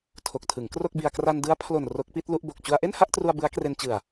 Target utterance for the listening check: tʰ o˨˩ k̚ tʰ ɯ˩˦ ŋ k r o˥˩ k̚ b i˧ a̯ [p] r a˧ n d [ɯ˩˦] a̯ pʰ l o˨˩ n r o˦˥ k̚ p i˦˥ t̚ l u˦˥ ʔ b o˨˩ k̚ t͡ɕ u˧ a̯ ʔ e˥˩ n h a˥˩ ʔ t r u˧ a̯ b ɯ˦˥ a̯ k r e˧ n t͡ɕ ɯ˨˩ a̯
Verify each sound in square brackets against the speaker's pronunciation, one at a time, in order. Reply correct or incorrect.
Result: incorrect: k, incorrect: ɯ˦˥

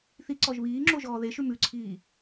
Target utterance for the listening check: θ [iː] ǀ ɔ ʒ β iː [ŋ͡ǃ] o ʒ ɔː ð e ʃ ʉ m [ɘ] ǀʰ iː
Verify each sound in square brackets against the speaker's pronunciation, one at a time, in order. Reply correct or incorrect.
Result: incorrect: i, incorrect: ŋ͡ǁ, incorrect: ʉ

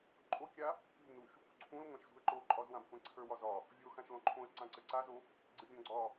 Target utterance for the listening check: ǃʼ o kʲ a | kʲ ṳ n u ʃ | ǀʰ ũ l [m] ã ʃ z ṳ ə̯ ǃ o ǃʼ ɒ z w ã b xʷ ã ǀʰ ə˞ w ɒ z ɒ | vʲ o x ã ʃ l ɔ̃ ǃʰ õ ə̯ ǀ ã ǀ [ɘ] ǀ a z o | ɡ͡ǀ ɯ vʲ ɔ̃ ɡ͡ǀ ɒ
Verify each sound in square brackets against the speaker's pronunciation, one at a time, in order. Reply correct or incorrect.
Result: incorrect: ŋʷ, correct

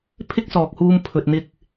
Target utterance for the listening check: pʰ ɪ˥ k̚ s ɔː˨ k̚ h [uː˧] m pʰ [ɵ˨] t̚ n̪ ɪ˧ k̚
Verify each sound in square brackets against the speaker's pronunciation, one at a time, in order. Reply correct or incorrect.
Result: correct, correct

